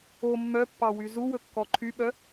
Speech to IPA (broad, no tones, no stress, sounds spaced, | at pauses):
o mː œ pː ɑ w y z u w ɵ kː ɔ ǃʰ y ɓ œ